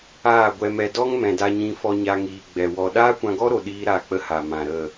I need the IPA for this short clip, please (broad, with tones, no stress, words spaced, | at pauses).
aː˦˨ɡʷɛ˧mɛ˧ dɔ˦ŋmɛ̃˨da˧ɲĩ˧ fɔ˧ɲa˧ŋiː˨ ɡ͡bɛ˨wɔ˧ ɗaː˦kʷã˧ɡɔ˦ɾo˨ ɗiː˦ɾa˦˨k͡pə˦ ha˨mã˨ɾə˦˨